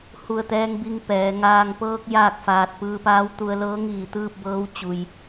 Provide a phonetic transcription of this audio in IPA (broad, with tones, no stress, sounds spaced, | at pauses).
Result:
h u˧˩ ə̯ t̪ ɛː˧ ŋ b i˧ ŋ p ɛː˩˧ ŋ aː˧ ŋ p ɤː˧ k̚ j aː˥˨ k̚ f aː˧ t̚ p ɯː˧ p aː˧˥ w t̪ u˧ ə̯ l ɤː˧˥ ŋ iː˧˩ t̪ ɯː˥˨ p̚ b ɤː˧˥ w t͡ɕ u˧ j